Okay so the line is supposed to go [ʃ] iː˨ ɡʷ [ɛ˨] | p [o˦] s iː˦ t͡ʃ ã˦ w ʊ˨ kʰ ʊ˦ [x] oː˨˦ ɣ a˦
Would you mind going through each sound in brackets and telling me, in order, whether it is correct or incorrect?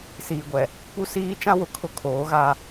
incorrect: s, correct, incorrect: u˦, incorrect: kʰ

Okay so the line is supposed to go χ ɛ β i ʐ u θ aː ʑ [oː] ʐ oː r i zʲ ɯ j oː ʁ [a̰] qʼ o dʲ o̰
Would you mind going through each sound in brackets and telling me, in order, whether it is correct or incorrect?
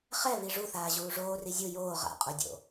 incorrect: uː, correct

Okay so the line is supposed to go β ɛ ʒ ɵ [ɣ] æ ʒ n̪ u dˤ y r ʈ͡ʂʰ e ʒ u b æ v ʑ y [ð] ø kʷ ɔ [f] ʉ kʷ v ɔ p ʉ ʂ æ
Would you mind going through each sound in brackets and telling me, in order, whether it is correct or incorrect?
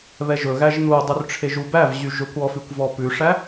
correct, incorrect: ʒ, correct

